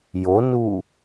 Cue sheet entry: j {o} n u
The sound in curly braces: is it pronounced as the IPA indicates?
yes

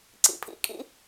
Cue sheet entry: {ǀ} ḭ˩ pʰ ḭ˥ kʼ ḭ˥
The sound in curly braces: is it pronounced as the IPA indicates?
yes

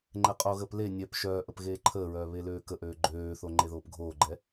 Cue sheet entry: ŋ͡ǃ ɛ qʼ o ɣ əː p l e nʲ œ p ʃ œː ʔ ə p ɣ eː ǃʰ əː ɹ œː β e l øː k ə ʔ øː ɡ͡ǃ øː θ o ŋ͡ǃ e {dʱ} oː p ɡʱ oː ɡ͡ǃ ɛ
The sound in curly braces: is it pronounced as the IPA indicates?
no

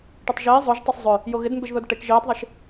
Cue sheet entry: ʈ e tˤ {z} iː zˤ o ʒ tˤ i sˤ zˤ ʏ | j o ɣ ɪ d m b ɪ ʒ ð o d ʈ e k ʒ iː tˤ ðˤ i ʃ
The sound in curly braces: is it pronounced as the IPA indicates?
no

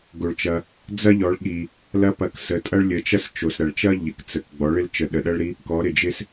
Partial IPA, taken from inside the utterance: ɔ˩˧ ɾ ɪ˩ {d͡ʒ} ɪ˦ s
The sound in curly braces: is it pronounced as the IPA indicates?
yes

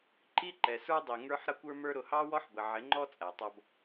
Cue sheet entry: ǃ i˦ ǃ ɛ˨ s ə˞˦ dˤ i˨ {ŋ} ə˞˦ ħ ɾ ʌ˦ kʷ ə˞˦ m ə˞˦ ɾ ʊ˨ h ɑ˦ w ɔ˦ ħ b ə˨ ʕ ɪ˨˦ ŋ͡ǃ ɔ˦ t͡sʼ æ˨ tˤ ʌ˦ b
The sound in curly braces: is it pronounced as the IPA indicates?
yes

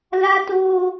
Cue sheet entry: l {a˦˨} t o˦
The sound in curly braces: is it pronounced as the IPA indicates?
no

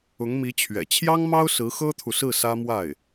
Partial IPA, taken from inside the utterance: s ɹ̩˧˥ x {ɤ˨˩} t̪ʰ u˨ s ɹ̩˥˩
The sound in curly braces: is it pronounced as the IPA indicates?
no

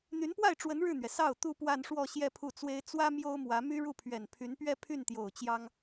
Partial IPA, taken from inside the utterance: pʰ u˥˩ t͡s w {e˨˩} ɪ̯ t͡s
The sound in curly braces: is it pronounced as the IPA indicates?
no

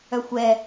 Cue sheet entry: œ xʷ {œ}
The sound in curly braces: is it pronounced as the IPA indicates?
no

